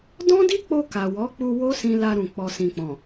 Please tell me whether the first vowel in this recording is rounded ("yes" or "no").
yes